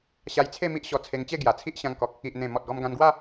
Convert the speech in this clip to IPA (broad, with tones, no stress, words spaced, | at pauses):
ɕa˧jt͡sʰe˥˧ mi˦ʔɕɔ˧t͡sʰe˧ŋt͡ɕe˥˧ ɡja˨˩t͡sʰi˦ʔɕã˧ŋkɔ˨k̚ | i˨ʔ n̪ẽ˨˩ mɔ˨t̚ɡɔ˧m ɡã˧nɡwa˥˧